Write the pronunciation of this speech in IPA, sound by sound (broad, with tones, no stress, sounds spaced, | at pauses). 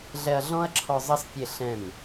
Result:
ɮ ɛ˧ ɐ̯ ɮ ɔ̃˦ ɐ̯ ǁʰ ɔ˧ zˤ ʌ˦ s pʲ e˦˨ ɬ ɛ̃˦˨ m